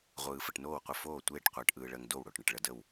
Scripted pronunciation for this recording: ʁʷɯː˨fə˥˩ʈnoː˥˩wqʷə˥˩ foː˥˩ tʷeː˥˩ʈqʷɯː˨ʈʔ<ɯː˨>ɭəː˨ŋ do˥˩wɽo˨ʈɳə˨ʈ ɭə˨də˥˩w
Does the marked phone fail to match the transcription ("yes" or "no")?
no